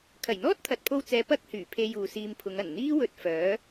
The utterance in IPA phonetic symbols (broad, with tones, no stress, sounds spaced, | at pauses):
kʰ ɐ˨˩ j n̪ ɔː˥ t̚ t̪ʰ ɐ˨ t̚ pʰ o˧ w t͡s ɛː˨˧ p ɐ˥ k̚ h yː˨˩ pʰ e˧ j uː˨ s iː˧ m pʰ ʊ˨˧ ŋ ɐ˨˩ n n̪ iː˥ w ɵ˧ t̚ f œː˨˥